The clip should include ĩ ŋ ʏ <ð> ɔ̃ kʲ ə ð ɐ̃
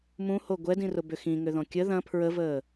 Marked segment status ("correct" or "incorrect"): correct